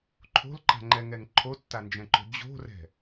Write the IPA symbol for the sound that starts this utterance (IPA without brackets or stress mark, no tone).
ǃʰ